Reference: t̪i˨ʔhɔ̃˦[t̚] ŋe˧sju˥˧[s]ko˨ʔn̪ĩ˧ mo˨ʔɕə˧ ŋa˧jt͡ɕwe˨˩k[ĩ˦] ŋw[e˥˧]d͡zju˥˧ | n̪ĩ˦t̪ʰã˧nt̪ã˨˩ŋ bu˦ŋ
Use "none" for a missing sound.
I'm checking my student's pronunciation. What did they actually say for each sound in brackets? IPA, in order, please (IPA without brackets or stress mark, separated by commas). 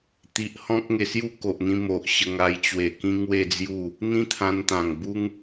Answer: k̚, none, ĩ˦, e˥˧